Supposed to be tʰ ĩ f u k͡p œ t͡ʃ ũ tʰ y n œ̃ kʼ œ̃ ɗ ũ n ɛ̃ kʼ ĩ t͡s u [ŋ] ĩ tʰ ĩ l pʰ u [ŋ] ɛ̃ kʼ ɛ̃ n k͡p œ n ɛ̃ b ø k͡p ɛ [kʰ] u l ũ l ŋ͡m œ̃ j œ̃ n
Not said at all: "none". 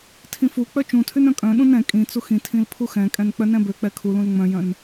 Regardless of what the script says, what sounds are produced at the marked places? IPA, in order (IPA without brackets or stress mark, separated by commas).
x, x, kʰ